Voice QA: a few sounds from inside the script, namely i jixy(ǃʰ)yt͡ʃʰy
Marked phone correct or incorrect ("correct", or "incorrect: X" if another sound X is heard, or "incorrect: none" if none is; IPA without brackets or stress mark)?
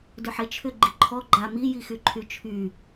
correct